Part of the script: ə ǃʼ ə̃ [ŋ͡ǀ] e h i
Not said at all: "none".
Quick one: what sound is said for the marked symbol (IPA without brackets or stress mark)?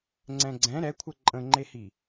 ŋ͡ǃ